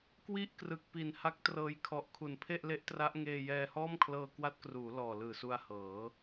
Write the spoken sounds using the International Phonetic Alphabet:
k w i˥˩ ʔ k r ɯ˨˩ k̚ p i˨˩ n h a˦˥ k̚ t r ɤː˧ j kʰ ɔ˨˩ ʔ kʰ u˩˦ n pʰ e˥˩ ʔ l e˦˥ ʔ t r a˦˥ ʔ ŋ eː˧ j ɛː˧ h ɔː˥˩ m kʰ l ɤː˧ k w a˦˥ t̚ k r uː˩˦ l ɔː˨˩ l ɯː˨˩ s u˧ a̯ h ɤː˩˦

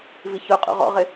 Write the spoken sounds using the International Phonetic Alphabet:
v i ç ʊ qʼ ṵ ʁ ɔ̰ ʁ ɪ

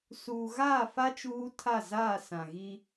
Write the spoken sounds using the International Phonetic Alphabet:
s uː˨ ɣ aː˦˨ f a˦ t͡ʃ uː˦ tʰ a˦˨ z aː˦˨ s ã˨ ɣ i˦

